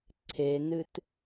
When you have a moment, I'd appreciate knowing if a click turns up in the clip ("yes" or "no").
yes